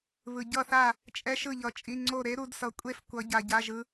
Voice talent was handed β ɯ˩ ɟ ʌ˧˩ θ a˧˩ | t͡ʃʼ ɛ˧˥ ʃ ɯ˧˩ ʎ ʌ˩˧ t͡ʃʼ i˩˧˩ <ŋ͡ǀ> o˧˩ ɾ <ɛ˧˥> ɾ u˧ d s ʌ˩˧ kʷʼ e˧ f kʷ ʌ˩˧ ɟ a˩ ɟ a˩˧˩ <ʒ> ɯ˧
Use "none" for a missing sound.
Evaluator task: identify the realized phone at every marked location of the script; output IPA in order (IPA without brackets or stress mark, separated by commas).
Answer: ŋ͡ǀ, e˧˥, ʒ